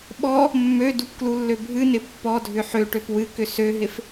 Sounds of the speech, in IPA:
ɓ ɔ | mː ø d u p k l u lː ø bʱ ɨ n ɪ pː ɔ dʱ ʏ ħ ø ʈ ø p w ɨ k ʏ s ø ɦ ɪ f

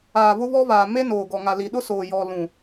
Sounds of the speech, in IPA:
aː˨ β ʊ˦ β ɔ˦ β aː˨ m e˦ n oː˨ ɡ ɔ˨ ŋ a˨ l i˨ ɗ ʊ˦ s oː˨ j ɔ˨ l ũ˨

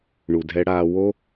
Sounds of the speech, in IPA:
ɳ u˨ dʱ ɛ˧ ɽ aː˧ w o˦

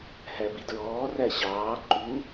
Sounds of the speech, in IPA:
h æ b i d ɹ ɔː r æ ɕ ɑː ǃ u

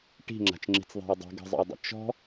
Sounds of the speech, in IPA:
ʈ i̤ ŋ͡ǁ a̤ t͡ʃ ŋ͡ǁ i̤ t͡s ðˤ a̤ j dˤ i̤ ɡ ə̤ zˤ ə̰ j dˤ ə̰ t͡ʃ ɔ̤

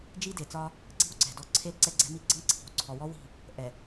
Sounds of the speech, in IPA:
d͡ʒ i˦ d e˨ t͡s ɒ˦ | ǀ i̤˦ w ǀ ɛ̤˨ d ɔ˦ ǀʰ e˦ l ǀ ɛ˦ ɡ͡ǀ ɛ̤˦ m i˦ ɡ͡ǀ ɤ˦ ŋ ǀʰ i̤˨ w ǀʰ ɔ˨ w ɔ˦ w i̤˦˨ | ʔ ɛ˨

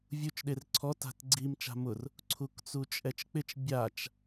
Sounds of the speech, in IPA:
vʲ u t͡ʃ ɗ e r ǀʰ ɔ t a̤ t ɡ͡ǀ i m t͡ʃ a̤ m ʊ r | ǀʰ u k t͡s u t͡ʃʼ ɛ t͡ʃ k͡p ɪ t͡ʃ bʲ a t͡ʃ

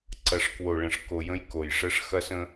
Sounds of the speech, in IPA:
ǀ ɐ˨ ʂ k w o˨ ɭ ə̃˨ ʂ k o˨ j ə̃˦ j k o˨ j ʂ ə˦ ʂ x ɐ˦ s ə̃˦

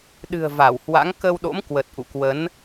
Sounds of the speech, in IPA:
ɗ ɨ̤˨˩ ə̯ v a˧˩ w h w a̰˧˥ ŋ k ə˧ w ɗ o̰˧˥ m k w ə˨˩ t̚ ʔ ṵ˧˨ k w ə˨˦ n

